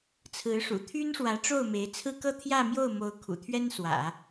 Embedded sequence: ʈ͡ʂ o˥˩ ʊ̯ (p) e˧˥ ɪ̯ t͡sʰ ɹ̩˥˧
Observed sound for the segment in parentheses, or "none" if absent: m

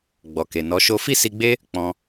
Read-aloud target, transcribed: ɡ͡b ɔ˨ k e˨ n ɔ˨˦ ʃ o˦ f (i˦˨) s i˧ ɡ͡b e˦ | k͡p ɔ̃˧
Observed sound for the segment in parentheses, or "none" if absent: i˦˨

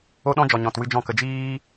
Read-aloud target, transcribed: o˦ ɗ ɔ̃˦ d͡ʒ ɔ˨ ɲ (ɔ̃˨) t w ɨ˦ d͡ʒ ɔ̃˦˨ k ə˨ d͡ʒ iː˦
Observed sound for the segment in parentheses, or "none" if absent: ɔ̃˨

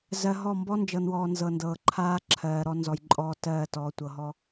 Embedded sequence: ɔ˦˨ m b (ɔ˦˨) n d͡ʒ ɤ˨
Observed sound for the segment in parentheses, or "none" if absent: ɔ˦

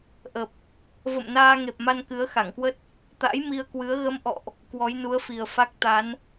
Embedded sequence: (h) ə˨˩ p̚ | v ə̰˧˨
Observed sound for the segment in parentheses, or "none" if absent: ʔ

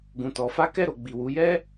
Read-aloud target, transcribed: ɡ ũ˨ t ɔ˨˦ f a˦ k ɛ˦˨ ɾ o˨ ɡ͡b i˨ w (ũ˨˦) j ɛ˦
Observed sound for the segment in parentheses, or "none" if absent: u˨˦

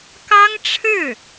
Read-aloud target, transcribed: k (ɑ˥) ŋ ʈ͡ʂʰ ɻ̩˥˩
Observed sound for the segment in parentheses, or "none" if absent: ɑ˥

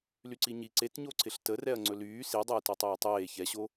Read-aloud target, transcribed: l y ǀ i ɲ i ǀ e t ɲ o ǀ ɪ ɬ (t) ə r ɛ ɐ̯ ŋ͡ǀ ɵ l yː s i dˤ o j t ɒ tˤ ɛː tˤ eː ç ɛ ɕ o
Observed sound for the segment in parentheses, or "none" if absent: t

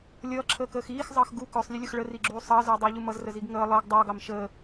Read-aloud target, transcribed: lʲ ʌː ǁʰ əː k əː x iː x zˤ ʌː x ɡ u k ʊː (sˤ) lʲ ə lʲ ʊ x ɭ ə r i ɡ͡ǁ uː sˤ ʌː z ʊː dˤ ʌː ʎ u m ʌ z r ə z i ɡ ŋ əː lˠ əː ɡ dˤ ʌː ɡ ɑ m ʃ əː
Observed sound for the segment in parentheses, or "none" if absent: sˤ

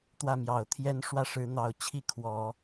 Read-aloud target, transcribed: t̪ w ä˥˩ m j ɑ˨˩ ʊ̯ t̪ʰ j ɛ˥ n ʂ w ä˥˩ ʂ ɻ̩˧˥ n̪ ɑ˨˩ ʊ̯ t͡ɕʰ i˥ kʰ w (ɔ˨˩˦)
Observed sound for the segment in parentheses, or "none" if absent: ɔ˨˩˦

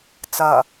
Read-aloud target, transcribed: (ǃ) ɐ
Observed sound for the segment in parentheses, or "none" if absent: t͡s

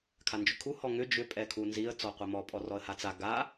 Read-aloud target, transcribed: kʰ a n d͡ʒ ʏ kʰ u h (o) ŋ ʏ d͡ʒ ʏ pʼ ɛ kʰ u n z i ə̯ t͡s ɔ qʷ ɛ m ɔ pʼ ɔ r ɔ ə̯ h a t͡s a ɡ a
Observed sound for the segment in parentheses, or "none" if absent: ɔ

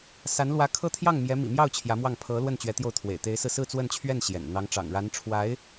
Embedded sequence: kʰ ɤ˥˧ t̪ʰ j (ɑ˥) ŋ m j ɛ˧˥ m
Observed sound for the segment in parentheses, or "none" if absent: ɑ˥˩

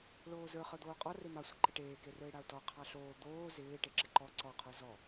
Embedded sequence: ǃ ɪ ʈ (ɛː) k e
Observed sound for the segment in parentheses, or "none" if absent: eː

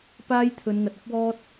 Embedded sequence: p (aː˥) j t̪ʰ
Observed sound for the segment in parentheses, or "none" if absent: aː˥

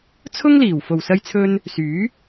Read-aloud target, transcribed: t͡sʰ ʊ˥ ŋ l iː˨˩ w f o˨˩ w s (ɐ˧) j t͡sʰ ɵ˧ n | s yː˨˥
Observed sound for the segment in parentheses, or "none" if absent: ɐ˧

